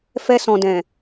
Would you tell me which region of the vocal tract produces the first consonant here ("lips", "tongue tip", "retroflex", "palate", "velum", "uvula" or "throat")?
lips